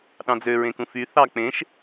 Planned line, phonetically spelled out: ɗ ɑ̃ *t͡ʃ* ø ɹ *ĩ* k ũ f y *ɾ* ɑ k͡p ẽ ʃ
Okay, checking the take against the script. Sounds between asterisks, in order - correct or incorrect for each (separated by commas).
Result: incorrect, incorrect, incorrect